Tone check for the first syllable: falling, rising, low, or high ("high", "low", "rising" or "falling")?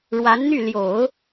rising